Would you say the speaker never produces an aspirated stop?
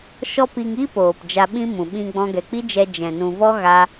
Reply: yes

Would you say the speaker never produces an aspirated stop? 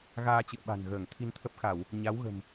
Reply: no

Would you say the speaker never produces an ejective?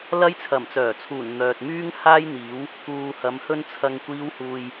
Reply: yes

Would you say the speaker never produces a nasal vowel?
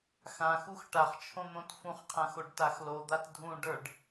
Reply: no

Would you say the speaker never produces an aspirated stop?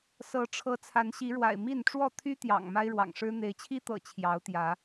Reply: no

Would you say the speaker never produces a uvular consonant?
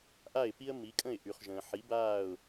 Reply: no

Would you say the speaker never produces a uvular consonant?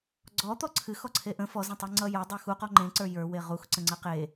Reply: no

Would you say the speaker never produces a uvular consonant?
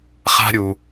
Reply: no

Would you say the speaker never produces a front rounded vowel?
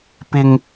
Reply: yes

